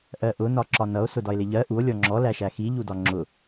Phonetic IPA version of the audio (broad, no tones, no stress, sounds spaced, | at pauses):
ʔ ɜ ʔ ʊ n ɒ ǁ ɒ n ʌ o̯ s ʊ d ɒ e̯ l ɪ ʎ ɜ ʔ u o̯ lʲ ɔ ŋ͡ǁ ɔ l æ ʃ æ x i ʎ u d ɒ ŋ͡ǁ ʊ